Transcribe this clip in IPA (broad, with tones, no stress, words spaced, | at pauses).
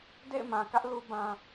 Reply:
dḛ˦˨ɪ̯mã˨kä˦ʔ lu˦ bã˦